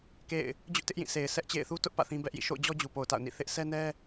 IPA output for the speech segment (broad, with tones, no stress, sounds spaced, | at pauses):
k ḛ˦˨ ɪ̯ | d͡ʑ ʊ˦ ʔ t ɪ˦ ʔ j ĩ˦˨ s e˨ ɪ̯ sʰ ɛ˦ ʔ t͡ɕ ḛ˦˨ ɪ̯ θ u˦ t ʊ˦ ʔ p ä̰˦˨ θ ĩ˦ b ɛ˦ ʔ j ḭ˦˨ ʃ o̰˦˨ ʊ̯ d͡ʑ ɔ˦ d͡ʑ u˨ p o˨ ʊ̯ t a̰˦˨ ʊ̯ n ḭ˦˨ θ ɪ˦ ʔ s ɛ˦ n ɛ˦